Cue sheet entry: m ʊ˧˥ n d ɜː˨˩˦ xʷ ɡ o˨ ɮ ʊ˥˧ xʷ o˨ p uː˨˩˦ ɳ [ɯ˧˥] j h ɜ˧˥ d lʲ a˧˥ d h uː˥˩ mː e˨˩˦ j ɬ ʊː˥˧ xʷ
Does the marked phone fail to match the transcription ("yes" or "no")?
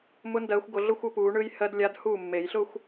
no